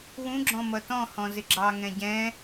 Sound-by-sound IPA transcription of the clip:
wũɡ͡ǁɔ̃ mʌtɔ̃hɔ̃ zɪɡ͡ǁɑŋɛ̃ ɟɛ̃

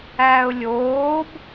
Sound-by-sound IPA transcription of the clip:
æːʊ̯lʲoːb

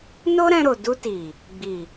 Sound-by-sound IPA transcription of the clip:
no˦ɾɛ̃˧ɾo˨ du˧ti˨ | ɡ͡bi˨

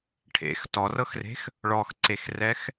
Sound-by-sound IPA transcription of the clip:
ʈʰḛx tɔrɤxre̤x | ɭɔxǀexrɛx

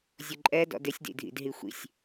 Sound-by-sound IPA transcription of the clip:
zʲʊǃʼɛ dɔ̰dɪsʲ dḭdʱḭdɦixʷḭsʲ

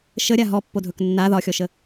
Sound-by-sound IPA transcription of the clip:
ʃəɾʲa ɦɔpːodʱɵk nːa ðɒxʲɔʃə

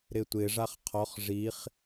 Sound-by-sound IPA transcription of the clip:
ɾɪtʷɪ ʐaχqʰɔχ ʐiχ

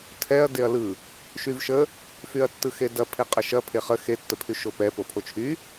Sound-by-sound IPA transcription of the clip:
tʰɛɐ̯ deɐ̯lɯ | ʃyvʃə | fyɐ̯tːɯxedɐ pʰeqʼɐʃɐ pʰeχə xe tːəpʰyʃopɛ popʰot͡ʃʰy

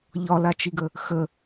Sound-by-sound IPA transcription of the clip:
ʎɒlat͡ʃiɡə | xə

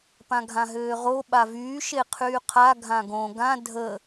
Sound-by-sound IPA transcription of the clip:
pãɡʱãɦøːʁo ɓavyː ʃeqʰyːqʰa ɡʱãɡõ ɡã dʱə

